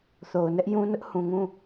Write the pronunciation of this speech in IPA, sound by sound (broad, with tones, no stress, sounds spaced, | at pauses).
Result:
θ o˨ ʊ̯ n ɛ˦ ʔ j ũ˦ n ʊ˦ ʔ h ũ˨ ŋ ũ˦˨